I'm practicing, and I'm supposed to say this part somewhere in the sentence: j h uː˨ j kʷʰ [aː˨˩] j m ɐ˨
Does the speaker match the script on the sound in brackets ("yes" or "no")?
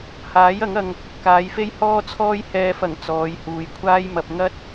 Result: no